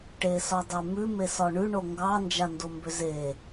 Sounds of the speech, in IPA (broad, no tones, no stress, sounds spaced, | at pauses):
ʈ e s ɒ dˤ e m ʉ m e s ɒ ɳ ʉ ɳ o ŋ ɡ ɑ n d͡ʒ a n d o m b ʏ z e